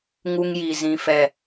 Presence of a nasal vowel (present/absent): present